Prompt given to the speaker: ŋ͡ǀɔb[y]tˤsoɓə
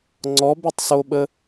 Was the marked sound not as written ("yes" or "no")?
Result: no